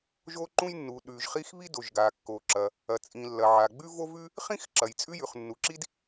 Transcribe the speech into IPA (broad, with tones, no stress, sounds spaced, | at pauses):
ʒ o˥ ǃ ũ˥ j nː u˩ ɗ ʉ˩ ʒ χ i˥ x β i˥ d o˩ ʒ ɡ a˩ kː o˩ ǁ ɐ˩ | ɐ˩ t͡sʼ ĩ˩ lː ɐ˩ ʕ a˩ ɡ͡b ʉ˥ v o˥ v ʉ˥ | χ ĩ˥ x ǁ ɐ˩ j t͡sʼ ʉ˥ j ʉ˩ χ nː u˩ ǁ i˥ d